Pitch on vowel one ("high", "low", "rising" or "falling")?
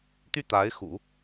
falling